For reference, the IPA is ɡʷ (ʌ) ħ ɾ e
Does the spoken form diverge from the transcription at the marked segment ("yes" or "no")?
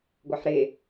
yes